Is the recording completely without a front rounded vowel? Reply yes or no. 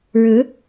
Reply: yes